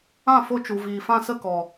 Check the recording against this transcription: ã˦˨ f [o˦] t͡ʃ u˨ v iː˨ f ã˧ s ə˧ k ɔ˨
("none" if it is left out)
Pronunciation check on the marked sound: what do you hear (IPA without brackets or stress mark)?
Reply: o˦